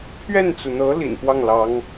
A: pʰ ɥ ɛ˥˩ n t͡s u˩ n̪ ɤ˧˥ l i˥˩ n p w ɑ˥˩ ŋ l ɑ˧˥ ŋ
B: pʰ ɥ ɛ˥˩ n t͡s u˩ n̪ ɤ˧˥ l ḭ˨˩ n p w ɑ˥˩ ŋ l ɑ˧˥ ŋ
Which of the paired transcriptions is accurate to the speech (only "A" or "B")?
B